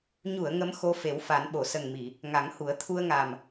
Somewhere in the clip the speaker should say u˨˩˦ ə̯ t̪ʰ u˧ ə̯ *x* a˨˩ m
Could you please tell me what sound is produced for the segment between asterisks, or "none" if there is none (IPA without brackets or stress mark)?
ŋ